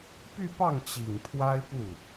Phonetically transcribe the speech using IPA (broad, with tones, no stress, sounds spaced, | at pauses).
p y˥˧ p ɑ˥˩ ŋ t͡ɕ i˨˩ ŋ pʰ w a˥ ɪ̯ p u˥˩